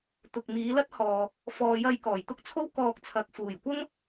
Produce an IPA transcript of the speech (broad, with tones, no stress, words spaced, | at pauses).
t̪ʊ˨k̚miː˨˧lɐ˥t̚hɔː˨ | fɔː˨jɐ˧j kɔː˨˩jt̪ʊ˥k̚t͡sʰo˥w kɔː˧k̚t͡sʰɐ˨k̚ fuː˨˩jkʷɐ˥ŋ